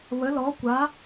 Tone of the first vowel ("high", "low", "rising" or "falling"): rising